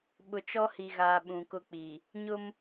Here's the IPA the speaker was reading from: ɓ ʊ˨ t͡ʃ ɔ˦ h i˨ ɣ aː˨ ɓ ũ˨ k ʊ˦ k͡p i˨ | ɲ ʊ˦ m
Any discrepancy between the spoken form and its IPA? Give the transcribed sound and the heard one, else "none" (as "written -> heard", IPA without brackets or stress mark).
none